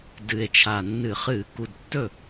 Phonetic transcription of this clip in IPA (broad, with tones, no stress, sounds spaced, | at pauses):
d ɨ˨˩ e̯ t͡ʃʰ a˨˩ nː ɨ˧˩˧ χ ɨ˧˩˧ k u˨˩ d tː ɵ˥˩